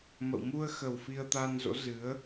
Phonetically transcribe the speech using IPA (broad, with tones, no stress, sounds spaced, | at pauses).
m ə̰˧˨ w m u˧ ə̯ x ə˨˩ w f i˧ ə̯ t̪ a˧ n z o̰˧˥ z ɨ˨˦ ə̯